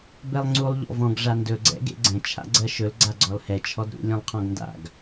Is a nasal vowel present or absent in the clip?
present